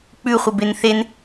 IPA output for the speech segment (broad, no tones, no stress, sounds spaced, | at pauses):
k͡p ʉ χʷ ɪ b e n θ e n